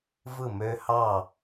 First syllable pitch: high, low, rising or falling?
falling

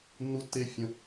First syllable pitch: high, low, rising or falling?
high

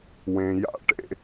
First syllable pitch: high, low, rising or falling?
low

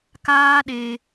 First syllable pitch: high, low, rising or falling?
high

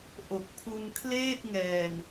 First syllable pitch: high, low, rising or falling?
low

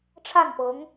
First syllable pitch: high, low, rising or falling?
falling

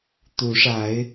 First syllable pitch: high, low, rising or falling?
rising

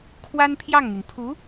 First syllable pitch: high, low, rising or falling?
high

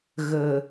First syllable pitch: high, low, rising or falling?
low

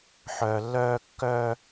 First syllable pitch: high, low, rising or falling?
low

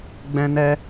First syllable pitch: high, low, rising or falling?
high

